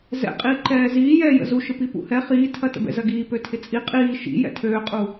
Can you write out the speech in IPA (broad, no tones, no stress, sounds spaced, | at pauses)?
z ɛ̰ qʼ iː ǃ ɛː z iː j ɛː j ə̰ z u ʃ ɪ p i p ṵ h ɛ χ iː tʰ ɐ t ə̰ b ɛ̰ z ɐ ɡ iː p ø tʰ ɪ t͡sʼ i qʼ iː ʃ ḭ j ɛ̰ tʰ øː qʼ u